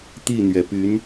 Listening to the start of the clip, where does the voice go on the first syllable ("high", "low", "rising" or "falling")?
falling